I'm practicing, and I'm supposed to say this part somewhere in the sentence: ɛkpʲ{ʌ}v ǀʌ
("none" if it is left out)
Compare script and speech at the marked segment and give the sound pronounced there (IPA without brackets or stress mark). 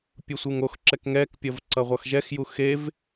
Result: ʌ